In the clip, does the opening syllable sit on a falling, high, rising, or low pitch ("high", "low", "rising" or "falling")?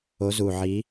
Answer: rising